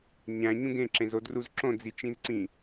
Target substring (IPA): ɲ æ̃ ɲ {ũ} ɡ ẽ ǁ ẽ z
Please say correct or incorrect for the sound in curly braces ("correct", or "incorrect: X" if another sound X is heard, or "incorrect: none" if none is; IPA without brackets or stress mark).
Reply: correct